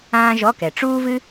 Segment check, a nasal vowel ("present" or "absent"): present